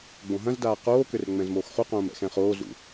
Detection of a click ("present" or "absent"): absent